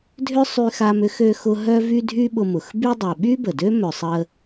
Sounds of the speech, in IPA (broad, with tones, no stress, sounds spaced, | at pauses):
dʱ ʏ˥ sˤ y˦ x a˦ m ʏ˥ x ø˦ x ʊ˦ ɦ œ˥ v y˥ dʱ y˥ ɓ ʊ˦ m ʊ˨ x b y˥ dˤ œ˨ ɓ y˥ b ə˩ d ø˥ m œ˨ sˤ ə˦